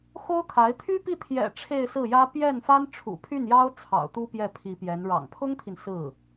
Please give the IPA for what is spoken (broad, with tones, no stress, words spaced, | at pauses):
xo˥ʊ̯kʰa˧˥ɪ̯ t̪ʰy˥pi˥˩ t̪ʰjɛ̰˨˩ ʈ͡ʂʰe˥˧ɪ̯sɹ̩˥˩jä˥ pjɛ˥˩nfa˥n ʈ͡ʂʰṵ˨˩pʰy˥˩njɑ˥ʊ̯ t͡sʰɑ̰˨˩ʊ̯t̪u˥ pjɛ˥˩pʰi˧˥pjɛ˧˥n ɻɑ̰˨˩ŋpʰʊ˥ŋt̪ʰi˨n sɹ̩˥˩